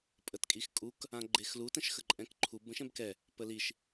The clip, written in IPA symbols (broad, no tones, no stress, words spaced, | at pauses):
pʼətkʼixkʼuk | ãɡ͡ǃexlu tə̃ʃxəǃʼɛ̃kǃʰub ə̃ʃɛ̃bkɛ | pəliʃ